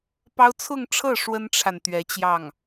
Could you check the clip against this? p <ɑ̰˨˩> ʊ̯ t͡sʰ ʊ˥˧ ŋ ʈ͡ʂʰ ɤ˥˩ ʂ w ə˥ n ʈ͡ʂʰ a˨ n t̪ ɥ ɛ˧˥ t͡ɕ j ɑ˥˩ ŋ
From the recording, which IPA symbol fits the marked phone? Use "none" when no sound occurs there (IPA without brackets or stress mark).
ɑ˥